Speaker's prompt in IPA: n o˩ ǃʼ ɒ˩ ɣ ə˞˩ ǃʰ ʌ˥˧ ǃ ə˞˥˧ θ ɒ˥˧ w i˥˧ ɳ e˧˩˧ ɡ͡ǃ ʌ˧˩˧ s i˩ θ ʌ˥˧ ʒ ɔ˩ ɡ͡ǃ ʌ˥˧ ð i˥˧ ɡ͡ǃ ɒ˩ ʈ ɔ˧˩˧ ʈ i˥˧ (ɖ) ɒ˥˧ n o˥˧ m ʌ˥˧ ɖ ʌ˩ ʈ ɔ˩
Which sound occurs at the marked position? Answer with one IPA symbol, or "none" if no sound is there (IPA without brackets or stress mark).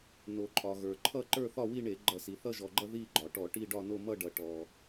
ɖ